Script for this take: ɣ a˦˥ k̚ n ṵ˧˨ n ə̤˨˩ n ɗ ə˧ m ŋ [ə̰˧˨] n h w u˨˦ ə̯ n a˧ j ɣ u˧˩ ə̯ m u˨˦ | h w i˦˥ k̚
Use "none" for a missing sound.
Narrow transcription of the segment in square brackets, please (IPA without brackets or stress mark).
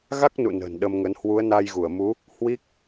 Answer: ə˨˦